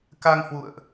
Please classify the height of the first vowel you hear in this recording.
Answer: low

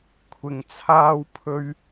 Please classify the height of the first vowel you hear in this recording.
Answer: high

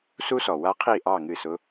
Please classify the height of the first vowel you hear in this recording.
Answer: high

